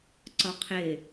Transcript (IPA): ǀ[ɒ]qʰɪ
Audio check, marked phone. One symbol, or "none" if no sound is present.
ɒ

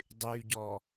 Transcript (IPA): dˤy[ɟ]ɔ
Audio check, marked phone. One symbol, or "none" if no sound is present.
ɟ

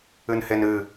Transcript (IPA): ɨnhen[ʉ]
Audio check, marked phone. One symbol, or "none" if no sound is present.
ɨ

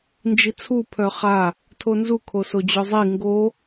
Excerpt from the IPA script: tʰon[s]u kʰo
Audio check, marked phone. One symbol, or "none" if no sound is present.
z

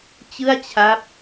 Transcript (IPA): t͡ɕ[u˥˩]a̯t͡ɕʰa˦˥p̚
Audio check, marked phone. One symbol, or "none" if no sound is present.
ɯ˥˩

